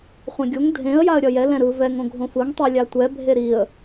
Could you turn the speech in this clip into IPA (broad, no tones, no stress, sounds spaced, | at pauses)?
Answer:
χʷ ɛ̃ ɡʲ o ŋ dʱ ẽ ə̯ j a ə̯ ɾʲ ʌ j ɛ l ɛ̃ ɾ ɯ v ɛ ŋ õ ɡʱ õ f ɯ ŋ tˤ i lʲ a tʷ ɛ bʱ e ɾ i ə̯